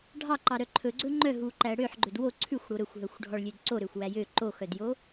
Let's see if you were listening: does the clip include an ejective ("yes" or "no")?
no